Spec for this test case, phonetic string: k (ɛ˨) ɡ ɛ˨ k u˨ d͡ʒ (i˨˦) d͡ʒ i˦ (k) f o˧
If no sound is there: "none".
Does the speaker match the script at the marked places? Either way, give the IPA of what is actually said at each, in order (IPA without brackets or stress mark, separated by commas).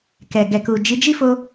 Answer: ɛ˨, i˨˦, none